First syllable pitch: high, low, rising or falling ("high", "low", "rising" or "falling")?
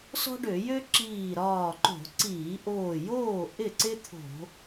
high